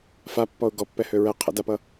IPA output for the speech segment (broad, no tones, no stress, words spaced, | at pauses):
fapːɔʊ̯ ɡɔpːɛhø ɹɛ qʰə̰dapʌ